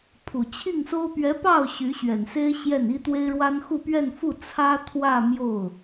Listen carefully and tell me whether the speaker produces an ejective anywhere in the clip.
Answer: no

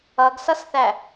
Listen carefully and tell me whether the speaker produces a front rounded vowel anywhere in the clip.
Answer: no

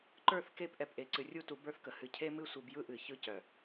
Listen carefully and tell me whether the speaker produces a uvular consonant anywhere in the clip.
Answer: no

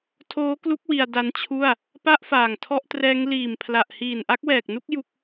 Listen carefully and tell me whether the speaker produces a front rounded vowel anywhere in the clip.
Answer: no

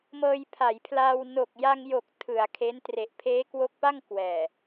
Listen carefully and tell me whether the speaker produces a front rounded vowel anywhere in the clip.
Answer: no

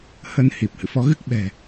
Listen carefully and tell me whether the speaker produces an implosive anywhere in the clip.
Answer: yes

